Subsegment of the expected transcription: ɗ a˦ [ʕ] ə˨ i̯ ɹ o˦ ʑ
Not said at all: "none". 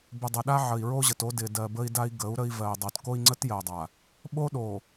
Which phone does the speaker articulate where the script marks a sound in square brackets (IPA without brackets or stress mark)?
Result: ʕ